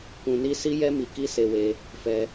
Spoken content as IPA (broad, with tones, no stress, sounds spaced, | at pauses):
k ũ˧ n i˦ s i˦ j ɛ˦ m i˧ k i˦ s e˧ w e˧ | f ɛ˧